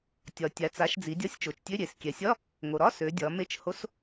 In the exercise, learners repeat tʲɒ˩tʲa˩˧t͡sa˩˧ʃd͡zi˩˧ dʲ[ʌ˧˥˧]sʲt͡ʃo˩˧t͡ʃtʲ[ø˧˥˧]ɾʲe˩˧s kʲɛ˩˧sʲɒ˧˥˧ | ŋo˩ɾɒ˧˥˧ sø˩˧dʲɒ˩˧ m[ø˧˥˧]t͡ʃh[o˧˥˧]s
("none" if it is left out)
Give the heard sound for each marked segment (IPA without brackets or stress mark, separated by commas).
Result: ɒ˧˥˧, ø˧˥˧, e˧˥˧, o˧˥˧